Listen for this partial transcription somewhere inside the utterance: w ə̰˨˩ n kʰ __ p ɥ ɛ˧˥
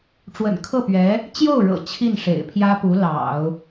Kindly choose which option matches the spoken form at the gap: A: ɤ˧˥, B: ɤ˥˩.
B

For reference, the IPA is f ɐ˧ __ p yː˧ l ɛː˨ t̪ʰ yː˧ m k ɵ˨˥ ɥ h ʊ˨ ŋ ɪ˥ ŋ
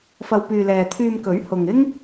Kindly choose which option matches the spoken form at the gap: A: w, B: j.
A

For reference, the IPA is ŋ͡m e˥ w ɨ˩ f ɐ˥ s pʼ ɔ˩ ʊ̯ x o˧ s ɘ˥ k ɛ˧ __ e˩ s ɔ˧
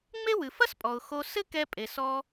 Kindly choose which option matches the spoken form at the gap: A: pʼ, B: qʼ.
A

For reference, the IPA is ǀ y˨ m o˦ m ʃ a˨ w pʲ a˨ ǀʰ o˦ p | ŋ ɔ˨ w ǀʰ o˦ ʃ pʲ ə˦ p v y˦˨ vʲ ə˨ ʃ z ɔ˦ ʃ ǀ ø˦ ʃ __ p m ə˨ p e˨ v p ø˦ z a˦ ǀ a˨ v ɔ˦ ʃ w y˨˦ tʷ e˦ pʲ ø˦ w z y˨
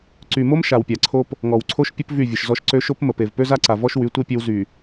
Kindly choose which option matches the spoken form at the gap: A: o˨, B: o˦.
B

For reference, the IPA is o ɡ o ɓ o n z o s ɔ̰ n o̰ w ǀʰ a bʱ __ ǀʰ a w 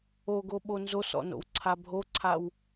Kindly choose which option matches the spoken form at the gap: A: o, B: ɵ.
A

